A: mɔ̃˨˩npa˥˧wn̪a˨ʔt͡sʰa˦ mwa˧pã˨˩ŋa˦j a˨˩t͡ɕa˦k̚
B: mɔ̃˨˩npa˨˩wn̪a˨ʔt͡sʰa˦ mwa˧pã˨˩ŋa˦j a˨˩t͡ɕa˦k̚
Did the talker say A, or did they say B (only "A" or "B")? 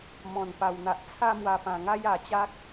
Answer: B